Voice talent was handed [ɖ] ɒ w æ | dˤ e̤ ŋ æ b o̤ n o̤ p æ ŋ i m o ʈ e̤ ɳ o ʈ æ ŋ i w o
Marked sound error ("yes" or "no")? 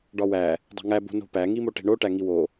no